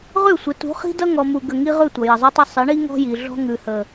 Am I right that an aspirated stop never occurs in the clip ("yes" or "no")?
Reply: yes